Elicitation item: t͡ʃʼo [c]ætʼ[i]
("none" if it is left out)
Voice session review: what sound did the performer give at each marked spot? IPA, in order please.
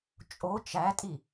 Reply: t͡ʃ, i

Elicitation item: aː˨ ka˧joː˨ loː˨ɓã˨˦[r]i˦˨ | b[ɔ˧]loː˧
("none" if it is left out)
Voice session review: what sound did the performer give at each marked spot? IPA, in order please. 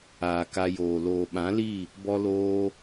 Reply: l, ɔ˧

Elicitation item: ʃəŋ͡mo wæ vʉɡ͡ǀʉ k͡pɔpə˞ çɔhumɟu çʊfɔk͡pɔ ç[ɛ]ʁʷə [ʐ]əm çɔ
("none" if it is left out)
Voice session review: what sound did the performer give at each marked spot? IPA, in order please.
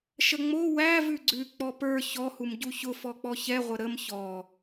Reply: ɛ, ɾ

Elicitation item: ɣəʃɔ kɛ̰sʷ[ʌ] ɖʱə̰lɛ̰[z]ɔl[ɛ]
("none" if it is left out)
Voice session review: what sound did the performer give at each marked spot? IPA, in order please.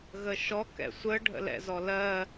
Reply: ə, z, ɜ

